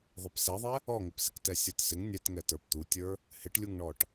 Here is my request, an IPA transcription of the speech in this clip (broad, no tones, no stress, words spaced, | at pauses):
ðˤɪpsɛðˤɛ | ɔŋɪpsɪk tɛsʲə˞tsɪŋ nʲɛtŋɛ tə˞pt̪utʲə˞ | hɪʈlʲuŋɳɔʈ